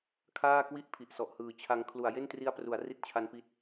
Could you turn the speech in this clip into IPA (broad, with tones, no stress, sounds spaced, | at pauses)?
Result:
kʰ aː˥˩ k w i˥˩ ʔ pʰ i˨˩ ʔ s ɔ˨˩ ʔ h ɯː˨˩ t͡ɕʰ a˧ ŋ kʰ l u˨˩ a̯ j e˥˩ n t r i˦˥ a̯ p r u˩˦ a̯ r i˥˩ t̚ t͡ɕʰ a˦˥ n p i˦˥ t̚